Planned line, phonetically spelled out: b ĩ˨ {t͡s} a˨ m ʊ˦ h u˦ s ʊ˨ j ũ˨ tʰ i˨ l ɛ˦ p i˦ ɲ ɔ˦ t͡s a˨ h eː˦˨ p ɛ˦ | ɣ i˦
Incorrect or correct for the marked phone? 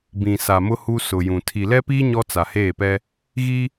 incorrect: s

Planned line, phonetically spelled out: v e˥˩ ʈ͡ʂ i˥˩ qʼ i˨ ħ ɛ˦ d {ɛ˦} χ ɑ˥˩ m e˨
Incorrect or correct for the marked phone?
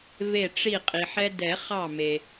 incorrect: ɛ˨˩˦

